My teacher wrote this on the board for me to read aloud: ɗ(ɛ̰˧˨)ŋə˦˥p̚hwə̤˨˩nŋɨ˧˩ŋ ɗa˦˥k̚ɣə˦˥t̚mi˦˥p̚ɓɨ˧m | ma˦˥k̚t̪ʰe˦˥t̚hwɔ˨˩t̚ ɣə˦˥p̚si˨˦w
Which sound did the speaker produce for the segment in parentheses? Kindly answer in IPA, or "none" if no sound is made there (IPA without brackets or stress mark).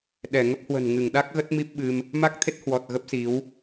ɛ˧˩